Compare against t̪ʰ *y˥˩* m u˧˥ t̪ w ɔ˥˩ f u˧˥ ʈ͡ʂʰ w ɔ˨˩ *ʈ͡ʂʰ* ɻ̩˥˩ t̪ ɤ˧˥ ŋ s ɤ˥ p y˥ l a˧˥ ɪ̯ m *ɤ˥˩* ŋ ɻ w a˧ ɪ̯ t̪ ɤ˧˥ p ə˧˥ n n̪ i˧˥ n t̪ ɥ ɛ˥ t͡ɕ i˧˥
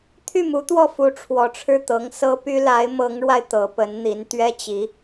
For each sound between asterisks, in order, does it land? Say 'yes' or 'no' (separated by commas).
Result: yes, yes, no